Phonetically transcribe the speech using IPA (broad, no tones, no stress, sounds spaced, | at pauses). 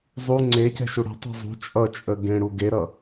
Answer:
zˤ u ŋ͡ǀ e c ɛ̤ ʃ u ɽ ɛ̤ tˤ ṳ zˤ ṳ t͡ʃʼ ʌ t͡ʃʼ ə ɡ ẽ ɽ u ɡ e ɾ ʌ